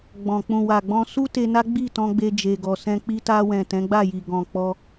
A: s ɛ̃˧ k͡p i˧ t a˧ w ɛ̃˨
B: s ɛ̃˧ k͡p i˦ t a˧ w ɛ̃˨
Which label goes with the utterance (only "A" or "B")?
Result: A